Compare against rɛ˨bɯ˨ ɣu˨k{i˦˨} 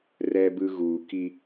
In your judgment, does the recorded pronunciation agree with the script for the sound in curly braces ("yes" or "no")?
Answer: no